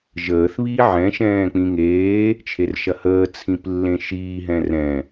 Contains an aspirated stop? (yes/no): yes